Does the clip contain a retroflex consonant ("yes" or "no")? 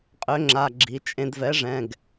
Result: yes